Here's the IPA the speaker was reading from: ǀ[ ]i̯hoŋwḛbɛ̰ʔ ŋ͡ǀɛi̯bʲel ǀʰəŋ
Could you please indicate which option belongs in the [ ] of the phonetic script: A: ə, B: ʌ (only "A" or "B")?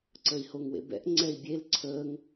A